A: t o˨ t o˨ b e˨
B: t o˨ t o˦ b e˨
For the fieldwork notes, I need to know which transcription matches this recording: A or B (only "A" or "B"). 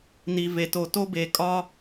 B